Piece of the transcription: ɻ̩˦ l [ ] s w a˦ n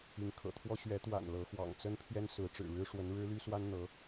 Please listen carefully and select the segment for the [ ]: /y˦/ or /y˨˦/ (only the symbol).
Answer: y˦